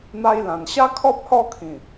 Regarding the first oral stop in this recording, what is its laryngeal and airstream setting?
aspirated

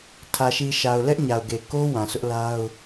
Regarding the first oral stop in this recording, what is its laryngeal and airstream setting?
aspirated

